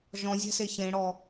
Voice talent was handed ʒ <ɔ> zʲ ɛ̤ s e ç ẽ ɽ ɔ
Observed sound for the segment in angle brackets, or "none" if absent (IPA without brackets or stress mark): ɔ̃